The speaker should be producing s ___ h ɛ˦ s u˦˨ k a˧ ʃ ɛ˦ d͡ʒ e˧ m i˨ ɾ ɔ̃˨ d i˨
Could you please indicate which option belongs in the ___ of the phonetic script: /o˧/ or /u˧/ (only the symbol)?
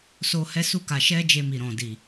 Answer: o˧